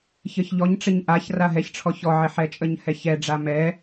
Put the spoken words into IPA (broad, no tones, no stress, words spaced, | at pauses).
çəçʎɔɲʈ͡ʂɪɲ ʔaç raɦɛçʈ͡ʂʰɔ çɔʕɪ ħɛt͡ʃʼəɲhɛ çɛɖ͡ʐa mɛ